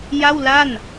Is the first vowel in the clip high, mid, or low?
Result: low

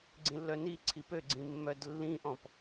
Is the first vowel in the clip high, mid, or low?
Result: high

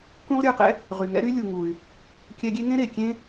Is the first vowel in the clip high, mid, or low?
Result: high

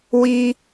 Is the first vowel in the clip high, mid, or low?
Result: high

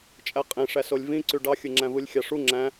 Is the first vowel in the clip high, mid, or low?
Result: low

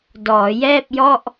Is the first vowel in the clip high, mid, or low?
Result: mid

